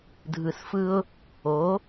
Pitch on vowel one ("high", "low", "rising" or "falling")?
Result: low